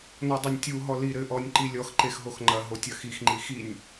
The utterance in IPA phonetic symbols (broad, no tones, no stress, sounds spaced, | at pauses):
n ɔ dˤ ɐ nʲ tʲ u ɦ ɔ l i ɾ ɘ ʔ ɔ nʲ ǃ i lʲ ɔ x ǃ e x ɦ o x ŋ͡ǃ ɐ ɦ o tʲ ɐ x i x ŋ͡ǃ i x i nʲ